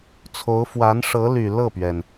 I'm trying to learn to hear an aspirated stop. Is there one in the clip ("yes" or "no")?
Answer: yes